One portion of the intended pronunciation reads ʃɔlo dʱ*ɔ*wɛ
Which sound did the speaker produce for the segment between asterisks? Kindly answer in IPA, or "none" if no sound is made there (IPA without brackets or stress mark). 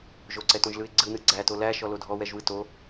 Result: ɔ